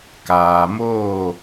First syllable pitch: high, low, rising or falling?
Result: low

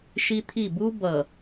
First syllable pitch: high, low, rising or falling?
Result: high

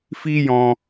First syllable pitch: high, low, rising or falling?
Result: high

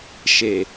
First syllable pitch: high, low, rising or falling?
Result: low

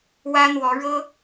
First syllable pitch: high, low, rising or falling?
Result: high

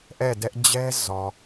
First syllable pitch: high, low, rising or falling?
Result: falling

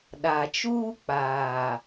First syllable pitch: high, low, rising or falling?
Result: low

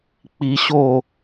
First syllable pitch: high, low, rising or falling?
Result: rising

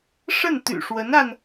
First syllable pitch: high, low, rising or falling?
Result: falling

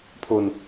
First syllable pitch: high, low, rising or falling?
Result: low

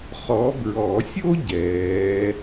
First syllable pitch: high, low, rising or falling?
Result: rising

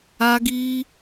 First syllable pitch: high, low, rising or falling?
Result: high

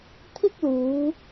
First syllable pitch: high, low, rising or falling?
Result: high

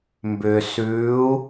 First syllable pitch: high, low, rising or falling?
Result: low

